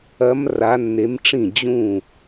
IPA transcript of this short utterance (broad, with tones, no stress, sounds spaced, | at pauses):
ɐ˧˥ m r a˧˥ nː e˧˥ m ʈ͡ʂ ĩ˥˩ d͡ʑ ũ˥˩